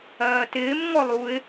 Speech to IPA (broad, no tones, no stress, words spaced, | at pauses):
ɜːtɪːm ŋɔlˠuɪ̯